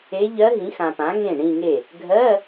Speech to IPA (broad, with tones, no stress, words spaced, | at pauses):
e˧˥ ʎɜ˧˥ɦĩ˩˥xã˨pã˩˥ ŋẽ˥˩ɳĩ˥˧ŋe˥˩ | ɡʱɜ˧˥˧